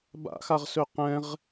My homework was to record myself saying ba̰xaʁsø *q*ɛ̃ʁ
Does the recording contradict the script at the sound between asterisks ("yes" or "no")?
no